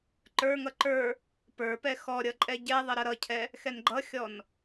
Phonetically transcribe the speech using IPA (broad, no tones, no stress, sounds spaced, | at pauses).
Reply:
ǃ ə˞ ŋ ʌ ǃ ə˞ | p ə˞ p ɛ x ɔ ɾʲ ʌ ǃʼ ɛ ɟ ɛ ðˤ ə ɾ ʌ ɾ ʌ cʰ ɛ | x ɛ n ɡ͡ǃ ʌ xʲ ɔ n